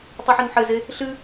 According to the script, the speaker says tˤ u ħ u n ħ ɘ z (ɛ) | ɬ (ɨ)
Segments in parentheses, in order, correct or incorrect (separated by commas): incorrect, correct